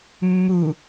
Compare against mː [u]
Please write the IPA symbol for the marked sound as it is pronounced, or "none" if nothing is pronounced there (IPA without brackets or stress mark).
u